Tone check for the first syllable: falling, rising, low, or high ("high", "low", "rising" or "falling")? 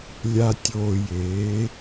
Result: low